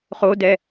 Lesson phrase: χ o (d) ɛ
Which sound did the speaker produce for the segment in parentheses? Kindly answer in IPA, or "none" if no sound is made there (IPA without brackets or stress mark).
d